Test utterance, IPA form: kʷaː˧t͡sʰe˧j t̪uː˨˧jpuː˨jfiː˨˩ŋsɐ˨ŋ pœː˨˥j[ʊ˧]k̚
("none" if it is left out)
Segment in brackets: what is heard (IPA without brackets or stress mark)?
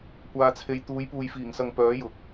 ʊ˨˥